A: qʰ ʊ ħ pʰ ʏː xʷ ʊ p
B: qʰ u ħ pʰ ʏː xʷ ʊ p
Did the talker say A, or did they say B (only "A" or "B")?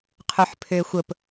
B